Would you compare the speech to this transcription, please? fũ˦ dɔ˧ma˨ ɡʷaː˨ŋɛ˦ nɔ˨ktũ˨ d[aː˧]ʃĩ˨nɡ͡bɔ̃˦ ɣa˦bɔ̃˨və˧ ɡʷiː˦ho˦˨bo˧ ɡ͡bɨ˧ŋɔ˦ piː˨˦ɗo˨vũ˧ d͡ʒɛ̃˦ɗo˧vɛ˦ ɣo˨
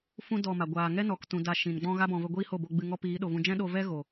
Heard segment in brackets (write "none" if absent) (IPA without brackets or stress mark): a˧